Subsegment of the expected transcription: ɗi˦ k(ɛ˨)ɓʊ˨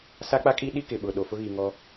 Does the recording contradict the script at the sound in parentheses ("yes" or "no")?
yes